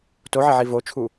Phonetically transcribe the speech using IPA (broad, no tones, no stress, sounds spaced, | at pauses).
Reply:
t o ʕ ɪ ʕ i v o t͡ʃʰ u